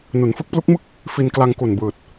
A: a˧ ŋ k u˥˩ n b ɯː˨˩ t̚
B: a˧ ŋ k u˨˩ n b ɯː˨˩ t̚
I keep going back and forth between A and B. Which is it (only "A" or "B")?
B